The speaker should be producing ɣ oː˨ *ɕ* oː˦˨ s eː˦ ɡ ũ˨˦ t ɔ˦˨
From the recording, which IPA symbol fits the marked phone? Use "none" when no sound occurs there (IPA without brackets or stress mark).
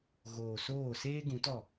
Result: s